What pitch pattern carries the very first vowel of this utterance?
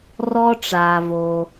high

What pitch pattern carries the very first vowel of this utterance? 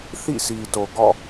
falling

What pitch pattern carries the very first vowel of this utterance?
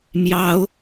high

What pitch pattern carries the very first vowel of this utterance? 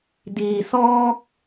low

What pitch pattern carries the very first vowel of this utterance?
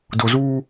low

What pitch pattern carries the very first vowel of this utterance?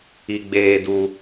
high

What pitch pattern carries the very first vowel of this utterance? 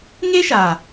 high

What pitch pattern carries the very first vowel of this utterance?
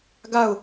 falling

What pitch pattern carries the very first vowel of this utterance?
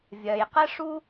low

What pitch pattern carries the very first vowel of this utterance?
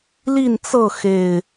falling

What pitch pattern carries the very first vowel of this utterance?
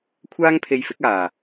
high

